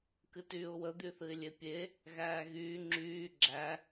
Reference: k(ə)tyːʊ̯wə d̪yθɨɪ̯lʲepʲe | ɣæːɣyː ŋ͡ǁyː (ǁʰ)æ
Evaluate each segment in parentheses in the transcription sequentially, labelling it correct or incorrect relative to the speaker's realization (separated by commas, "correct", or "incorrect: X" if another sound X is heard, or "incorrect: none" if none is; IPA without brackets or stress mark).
incorrect: ɨ, incorrect: ɡ͡ǁ